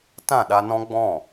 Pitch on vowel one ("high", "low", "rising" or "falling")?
falling